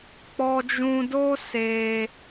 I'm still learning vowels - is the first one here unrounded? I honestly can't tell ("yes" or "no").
no